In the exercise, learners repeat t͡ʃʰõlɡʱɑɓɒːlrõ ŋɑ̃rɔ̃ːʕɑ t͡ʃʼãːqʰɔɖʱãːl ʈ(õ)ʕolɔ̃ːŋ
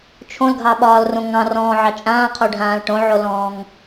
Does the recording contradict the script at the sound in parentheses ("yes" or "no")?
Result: no